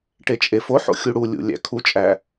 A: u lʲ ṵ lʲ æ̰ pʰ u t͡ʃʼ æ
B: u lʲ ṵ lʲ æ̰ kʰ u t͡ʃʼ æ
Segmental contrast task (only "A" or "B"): B